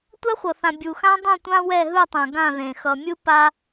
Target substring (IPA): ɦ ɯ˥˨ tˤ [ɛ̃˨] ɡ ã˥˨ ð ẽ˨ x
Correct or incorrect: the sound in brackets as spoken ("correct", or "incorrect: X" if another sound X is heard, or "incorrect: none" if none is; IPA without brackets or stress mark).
correct